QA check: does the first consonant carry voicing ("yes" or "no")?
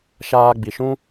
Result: no